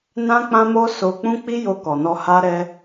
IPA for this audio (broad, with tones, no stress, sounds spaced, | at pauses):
n ã˦ k͡p ã˦ m o˦ s o˧ k͡p ũ˦ k͡p i˦ j o˧ k ɔ˨ n ɔ˧ h a˦ ɾ ɛ˧